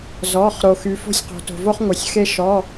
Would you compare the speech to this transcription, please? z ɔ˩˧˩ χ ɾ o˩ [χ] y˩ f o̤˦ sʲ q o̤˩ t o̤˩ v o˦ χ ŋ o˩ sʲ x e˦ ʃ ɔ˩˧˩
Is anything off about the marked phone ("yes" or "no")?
yes